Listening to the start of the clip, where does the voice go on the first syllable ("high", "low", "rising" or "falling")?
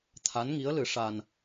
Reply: rising